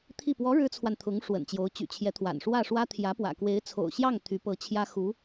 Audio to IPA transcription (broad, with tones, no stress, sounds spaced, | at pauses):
t̪ʰ i˥˩ p w ɔ˧˥ ɻ ɻ̩˥ t͡sʰ w a˨ n t̪ʰ ʊ˧˥ ŋ ʂ w ə̰˨˩ n t͡ɕ j o˧˥ ʊ̯ t͡ɕ y̰˨˩ t͡ɕʰ j ɛ˧˥ t̪ʰ w a̰˨˩ n ʂ w ä˥˩ ʂ w ä˥ t̪ʰ j ä˧˥ p w ä̰˨˩ k w e˧˥ ɪ̯ t͡sʰ o̰˨˩ ʊ̯ ɕ j ɑ˥˩ ŋ t̪ʰ y˧˥ p ɤ˧˥ t͡ɕʰ j ä˥ x u˧˥